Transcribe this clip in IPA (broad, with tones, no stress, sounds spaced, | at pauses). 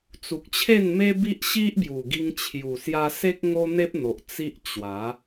t͡s u˨ k̚ t͡ɕʰ e˥˧ n m e˦ b i˦ ʔ ɕ i˦ ʔ b j u˨˩ ɡ i˧ ŋ t͡ɕʰ j u˨˩ s j a˧ s e˦ k̚ ŋ o˦ n̪ e˦ p̚ n̪ o˨ ʔ t͡s i˦ ʔ t͡ɕ w a˨˦